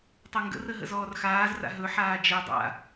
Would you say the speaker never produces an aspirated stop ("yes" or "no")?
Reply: yes